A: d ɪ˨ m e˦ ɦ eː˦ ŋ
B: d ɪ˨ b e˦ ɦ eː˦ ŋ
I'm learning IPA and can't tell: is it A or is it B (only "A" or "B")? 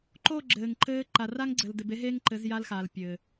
B